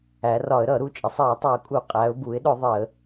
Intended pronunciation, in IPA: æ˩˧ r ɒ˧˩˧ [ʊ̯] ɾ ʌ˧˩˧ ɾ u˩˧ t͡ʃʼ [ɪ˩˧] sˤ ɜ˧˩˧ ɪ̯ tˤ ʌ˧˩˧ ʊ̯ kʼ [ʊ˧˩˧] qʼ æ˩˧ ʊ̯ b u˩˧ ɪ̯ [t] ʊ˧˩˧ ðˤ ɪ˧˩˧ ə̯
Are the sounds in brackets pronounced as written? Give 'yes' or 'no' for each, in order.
no, yes, no, no

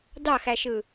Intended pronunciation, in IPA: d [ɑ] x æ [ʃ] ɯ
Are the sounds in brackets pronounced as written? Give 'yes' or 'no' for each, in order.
yes, yes

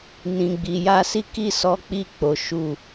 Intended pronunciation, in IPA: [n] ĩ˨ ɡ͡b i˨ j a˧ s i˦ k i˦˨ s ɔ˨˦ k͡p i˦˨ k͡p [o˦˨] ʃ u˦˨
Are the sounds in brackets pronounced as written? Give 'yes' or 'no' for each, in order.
yes, no

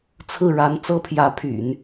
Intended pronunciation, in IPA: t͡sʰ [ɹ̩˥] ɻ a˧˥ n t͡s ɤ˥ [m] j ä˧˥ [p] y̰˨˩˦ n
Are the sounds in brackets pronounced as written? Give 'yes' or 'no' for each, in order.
no, no, no

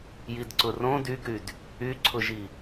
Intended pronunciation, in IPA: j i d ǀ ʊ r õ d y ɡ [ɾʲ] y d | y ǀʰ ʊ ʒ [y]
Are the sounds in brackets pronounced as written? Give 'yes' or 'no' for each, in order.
no, no

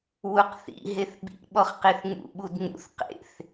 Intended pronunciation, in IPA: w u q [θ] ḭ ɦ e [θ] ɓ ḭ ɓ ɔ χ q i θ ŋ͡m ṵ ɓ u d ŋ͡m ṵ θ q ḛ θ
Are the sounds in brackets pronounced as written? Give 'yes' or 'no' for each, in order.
yes, yes

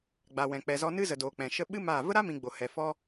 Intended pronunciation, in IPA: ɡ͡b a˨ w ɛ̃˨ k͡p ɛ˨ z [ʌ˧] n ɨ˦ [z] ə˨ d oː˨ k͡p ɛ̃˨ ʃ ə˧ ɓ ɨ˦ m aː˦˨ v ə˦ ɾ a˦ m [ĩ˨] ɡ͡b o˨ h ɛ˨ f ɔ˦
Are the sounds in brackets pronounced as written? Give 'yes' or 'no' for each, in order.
no, yes, yes

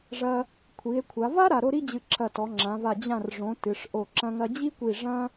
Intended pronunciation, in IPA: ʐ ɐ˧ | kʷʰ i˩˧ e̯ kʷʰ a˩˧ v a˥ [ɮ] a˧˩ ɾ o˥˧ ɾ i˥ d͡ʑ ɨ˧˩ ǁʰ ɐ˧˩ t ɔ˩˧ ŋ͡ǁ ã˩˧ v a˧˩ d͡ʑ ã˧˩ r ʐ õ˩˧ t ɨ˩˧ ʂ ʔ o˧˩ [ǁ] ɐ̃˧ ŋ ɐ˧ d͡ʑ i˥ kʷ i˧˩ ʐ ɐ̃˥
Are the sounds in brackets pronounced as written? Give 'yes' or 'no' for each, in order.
no, yes

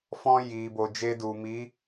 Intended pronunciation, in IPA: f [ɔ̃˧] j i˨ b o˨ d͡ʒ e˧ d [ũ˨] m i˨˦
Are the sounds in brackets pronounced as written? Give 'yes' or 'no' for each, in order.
yes, no

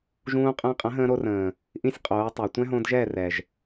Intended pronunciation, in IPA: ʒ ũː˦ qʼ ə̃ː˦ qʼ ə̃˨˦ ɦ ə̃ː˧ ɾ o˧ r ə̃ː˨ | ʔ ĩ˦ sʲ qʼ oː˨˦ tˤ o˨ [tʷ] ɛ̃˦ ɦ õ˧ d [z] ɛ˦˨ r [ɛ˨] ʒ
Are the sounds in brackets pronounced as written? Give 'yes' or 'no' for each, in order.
yes, no, yes

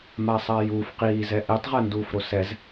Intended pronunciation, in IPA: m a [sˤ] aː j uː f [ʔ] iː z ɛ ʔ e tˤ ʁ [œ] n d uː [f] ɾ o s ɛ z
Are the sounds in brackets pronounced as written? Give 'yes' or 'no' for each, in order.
yes, no, no, yes

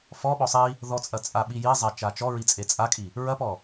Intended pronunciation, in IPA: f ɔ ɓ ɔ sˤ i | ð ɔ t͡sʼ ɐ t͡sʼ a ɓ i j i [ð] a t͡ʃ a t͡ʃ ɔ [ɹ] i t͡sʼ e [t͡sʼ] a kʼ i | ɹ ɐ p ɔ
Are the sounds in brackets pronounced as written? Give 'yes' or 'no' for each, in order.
no, yes, yes

